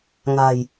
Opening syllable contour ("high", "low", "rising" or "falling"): low